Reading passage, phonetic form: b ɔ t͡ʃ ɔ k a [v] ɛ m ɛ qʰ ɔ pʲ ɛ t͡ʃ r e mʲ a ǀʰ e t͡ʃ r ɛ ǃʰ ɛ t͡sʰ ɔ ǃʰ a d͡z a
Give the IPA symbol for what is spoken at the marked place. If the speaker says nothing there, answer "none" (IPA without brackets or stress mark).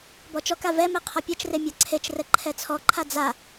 v